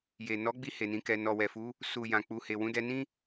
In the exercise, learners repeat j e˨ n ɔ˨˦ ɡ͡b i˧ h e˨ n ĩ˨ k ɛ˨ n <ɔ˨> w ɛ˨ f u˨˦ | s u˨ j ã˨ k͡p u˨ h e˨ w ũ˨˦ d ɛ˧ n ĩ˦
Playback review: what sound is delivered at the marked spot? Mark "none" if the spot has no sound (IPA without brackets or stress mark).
ɔ˨